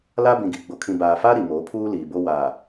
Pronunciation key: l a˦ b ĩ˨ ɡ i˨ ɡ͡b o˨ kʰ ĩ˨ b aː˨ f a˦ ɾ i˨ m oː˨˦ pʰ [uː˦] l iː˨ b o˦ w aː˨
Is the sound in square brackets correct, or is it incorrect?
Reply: correct